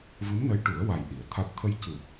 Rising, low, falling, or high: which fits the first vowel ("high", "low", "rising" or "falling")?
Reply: rising